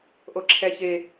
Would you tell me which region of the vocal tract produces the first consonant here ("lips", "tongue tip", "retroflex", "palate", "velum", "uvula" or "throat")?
throat